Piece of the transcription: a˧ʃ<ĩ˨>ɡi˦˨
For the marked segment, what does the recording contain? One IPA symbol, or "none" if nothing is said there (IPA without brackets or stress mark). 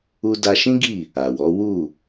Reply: ĩ˦